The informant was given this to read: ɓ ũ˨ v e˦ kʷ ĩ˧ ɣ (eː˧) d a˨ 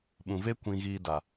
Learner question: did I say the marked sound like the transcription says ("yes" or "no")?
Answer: no